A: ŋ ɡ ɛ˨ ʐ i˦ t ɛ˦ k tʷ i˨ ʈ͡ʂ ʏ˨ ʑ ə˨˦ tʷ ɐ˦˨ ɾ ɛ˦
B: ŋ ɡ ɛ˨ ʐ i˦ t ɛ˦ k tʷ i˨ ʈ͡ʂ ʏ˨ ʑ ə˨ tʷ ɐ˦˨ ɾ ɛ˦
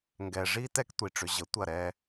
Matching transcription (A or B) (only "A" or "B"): A